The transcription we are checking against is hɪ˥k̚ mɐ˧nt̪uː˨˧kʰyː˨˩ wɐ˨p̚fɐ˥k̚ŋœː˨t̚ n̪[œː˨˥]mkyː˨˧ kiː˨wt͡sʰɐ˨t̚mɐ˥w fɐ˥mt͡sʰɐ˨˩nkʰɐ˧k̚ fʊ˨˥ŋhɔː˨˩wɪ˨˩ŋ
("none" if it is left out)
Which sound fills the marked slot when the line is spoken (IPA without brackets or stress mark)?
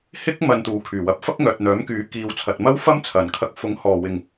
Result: œː˨˥